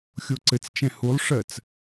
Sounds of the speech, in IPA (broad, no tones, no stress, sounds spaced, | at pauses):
xʲ o ǀ ɘ t͡s t͡ʃ ɛ̃ h u lˠ ʂ ɜ t͡s